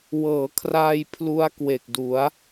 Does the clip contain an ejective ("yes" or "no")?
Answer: no